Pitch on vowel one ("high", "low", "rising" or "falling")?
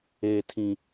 low